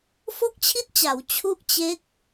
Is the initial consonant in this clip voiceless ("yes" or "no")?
yes